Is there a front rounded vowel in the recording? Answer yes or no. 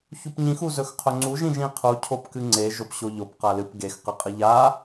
no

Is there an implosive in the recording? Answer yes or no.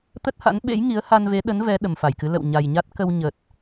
yes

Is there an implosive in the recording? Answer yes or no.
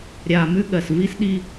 yes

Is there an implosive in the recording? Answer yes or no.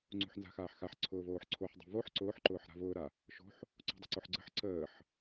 no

